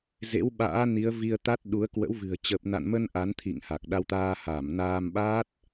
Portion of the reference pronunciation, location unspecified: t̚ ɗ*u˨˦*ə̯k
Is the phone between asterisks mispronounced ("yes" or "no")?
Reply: no